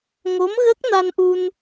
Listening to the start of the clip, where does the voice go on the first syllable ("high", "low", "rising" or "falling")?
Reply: rising